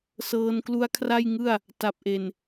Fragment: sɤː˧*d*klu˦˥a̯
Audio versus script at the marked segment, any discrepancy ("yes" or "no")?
yes